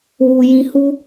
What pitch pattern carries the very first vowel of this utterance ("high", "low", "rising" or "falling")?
low